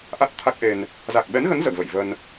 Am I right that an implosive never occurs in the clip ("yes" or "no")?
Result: no